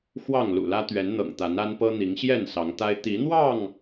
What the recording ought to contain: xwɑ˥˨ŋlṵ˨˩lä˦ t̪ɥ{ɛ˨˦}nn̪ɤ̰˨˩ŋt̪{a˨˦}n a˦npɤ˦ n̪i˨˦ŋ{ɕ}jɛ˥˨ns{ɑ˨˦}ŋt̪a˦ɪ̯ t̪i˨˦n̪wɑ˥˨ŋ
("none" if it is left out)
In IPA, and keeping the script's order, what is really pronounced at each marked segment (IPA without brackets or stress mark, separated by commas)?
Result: ɛ˨˦, a˨˦, ɕ, ɑ˨˦